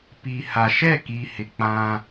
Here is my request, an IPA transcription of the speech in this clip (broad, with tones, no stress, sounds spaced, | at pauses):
p i˨ h a˨ ʃ ɛ˦˨ k i˨ h ɪ˨ k͡p ã˦